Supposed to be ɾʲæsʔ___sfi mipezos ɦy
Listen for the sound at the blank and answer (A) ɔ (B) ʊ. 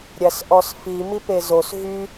A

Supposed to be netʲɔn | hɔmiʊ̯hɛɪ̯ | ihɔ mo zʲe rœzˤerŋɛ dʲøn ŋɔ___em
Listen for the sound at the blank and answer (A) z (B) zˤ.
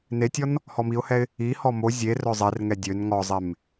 B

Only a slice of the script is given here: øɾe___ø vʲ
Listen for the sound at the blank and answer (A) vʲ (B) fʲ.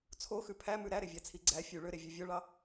A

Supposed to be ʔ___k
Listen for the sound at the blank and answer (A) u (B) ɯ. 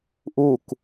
A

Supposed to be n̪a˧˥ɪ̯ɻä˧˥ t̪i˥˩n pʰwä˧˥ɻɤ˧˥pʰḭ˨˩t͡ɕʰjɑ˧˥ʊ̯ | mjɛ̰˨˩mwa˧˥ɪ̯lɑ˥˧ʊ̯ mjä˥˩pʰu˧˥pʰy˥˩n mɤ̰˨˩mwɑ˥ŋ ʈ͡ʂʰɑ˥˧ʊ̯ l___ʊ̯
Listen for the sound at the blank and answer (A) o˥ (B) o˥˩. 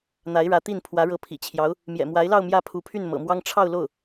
B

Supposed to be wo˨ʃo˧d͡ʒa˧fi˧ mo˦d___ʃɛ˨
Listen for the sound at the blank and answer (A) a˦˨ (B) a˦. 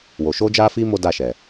A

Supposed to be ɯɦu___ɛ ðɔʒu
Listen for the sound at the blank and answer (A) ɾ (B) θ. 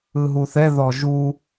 B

